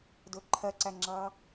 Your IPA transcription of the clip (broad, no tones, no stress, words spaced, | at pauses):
dʊ ǃʰɜǀæ ŋ͡ǁɑ